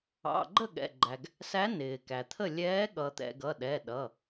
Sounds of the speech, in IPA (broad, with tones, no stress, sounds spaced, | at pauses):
ɑ̰˩˧˩ ɡ͡ǃ ə˥˩ ɠ ɛ̰˩˧˩ ɡ͡ǃ æ˩ ɡ | s æ˨˥ n ɪː˩ k æ˩ t̪ʰ ə˥˩ lʲ ɛː˨˥ ɠ ʌ˩ t̪ ɛ̰˩ ɡ ʌ˩˧˩ ɗ ɛ˩˧˩ ɗ ʌ˩˧˩